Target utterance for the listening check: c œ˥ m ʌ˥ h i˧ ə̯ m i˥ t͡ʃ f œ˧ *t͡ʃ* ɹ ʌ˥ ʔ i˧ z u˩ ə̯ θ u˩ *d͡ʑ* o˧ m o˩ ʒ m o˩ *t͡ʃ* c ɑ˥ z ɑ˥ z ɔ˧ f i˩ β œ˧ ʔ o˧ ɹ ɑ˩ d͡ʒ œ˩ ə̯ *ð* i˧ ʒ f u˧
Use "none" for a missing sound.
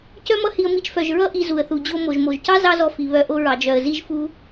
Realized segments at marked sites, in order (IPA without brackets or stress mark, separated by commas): ʒ, d͡ʑ, ʒ, z